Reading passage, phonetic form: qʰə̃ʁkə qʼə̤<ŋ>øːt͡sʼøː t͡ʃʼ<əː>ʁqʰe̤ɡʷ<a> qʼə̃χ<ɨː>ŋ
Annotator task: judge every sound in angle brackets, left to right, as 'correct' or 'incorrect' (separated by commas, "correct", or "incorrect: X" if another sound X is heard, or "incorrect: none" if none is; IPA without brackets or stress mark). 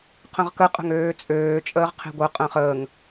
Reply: correct, correct, incorrect: ə, incorrect: əː